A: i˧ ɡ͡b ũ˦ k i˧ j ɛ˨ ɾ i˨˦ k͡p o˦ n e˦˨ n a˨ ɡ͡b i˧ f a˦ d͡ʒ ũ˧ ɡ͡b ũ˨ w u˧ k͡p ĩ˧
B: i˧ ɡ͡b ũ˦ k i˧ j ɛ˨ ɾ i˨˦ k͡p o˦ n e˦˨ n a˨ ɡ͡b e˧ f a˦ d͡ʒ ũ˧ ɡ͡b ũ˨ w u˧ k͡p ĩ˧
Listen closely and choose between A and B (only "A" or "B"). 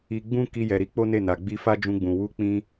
A